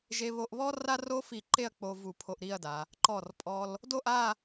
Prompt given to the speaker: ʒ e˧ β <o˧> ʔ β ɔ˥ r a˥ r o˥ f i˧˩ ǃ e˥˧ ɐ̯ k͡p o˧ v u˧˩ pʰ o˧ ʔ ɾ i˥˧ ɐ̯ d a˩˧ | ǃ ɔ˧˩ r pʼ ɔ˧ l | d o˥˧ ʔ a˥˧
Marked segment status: correct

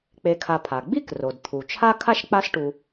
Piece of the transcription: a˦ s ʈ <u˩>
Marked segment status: incorrect: u˨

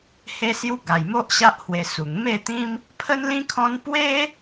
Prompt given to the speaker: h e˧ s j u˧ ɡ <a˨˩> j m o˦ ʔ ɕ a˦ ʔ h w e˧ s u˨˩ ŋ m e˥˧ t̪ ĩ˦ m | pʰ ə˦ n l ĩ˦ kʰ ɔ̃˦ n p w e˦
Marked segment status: correct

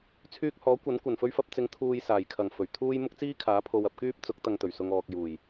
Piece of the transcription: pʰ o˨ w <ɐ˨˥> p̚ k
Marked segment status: incorrect: ɐ˨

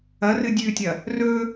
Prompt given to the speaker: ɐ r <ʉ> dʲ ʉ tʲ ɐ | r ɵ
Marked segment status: incorrect: ɨ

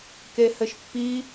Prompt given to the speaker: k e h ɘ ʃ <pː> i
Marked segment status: correct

